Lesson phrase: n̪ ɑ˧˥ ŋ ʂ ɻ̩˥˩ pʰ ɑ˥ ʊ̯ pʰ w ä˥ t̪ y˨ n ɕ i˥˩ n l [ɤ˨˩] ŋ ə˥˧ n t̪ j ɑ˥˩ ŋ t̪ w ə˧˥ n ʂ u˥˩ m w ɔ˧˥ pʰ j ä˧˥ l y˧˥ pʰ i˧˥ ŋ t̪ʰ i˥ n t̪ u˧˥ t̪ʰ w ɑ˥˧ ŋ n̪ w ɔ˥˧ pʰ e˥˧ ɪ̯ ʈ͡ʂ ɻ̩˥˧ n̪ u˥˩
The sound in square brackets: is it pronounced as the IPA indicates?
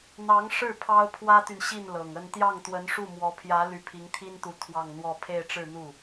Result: yes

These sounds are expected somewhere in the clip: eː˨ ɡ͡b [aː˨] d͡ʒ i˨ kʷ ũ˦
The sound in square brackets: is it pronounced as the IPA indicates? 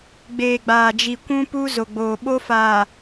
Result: yes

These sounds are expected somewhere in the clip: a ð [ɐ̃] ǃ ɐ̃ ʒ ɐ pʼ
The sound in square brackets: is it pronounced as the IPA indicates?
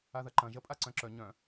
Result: no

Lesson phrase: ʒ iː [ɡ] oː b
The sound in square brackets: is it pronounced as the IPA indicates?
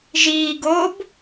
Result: yes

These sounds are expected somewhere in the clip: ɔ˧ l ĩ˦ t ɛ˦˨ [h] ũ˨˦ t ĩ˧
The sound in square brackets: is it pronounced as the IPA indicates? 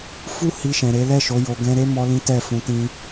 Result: no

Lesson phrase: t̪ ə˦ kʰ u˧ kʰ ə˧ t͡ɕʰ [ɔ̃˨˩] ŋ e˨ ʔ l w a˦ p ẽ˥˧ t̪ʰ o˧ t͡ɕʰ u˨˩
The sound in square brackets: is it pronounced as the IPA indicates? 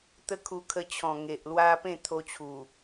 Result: yes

